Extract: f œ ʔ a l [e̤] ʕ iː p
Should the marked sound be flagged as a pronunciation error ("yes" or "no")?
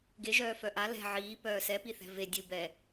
yes